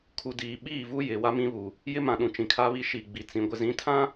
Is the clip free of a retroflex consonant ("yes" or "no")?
yes